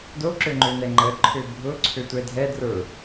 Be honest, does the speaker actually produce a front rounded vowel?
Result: yes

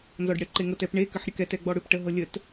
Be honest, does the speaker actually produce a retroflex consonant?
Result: yes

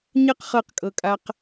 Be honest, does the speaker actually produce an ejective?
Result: yes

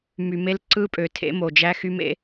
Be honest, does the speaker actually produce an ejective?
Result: yes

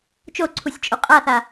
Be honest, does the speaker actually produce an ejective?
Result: yes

